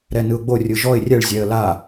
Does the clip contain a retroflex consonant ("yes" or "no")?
yes